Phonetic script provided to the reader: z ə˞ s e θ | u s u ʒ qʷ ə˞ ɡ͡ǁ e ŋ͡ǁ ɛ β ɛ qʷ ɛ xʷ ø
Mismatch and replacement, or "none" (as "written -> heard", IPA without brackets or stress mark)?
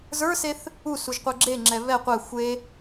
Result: ø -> e